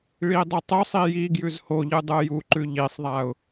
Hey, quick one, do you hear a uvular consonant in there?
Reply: no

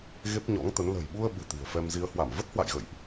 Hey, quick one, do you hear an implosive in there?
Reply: yes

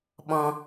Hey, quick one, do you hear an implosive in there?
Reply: yes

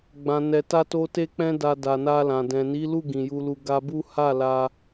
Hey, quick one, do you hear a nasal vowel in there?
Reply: yes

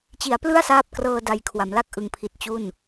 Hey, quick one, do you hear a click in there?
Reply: no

